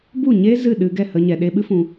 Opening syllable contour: falling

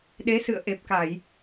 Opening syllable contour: rising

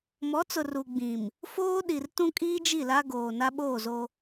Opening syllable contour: rising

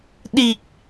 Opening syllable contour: low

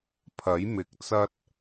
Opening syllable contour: rising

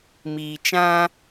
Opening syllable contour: low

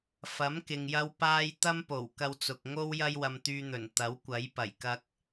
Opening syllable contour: rising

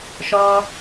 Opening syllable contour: high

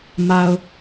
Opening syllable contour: low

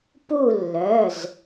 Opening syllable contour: falling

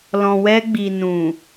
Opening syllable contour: low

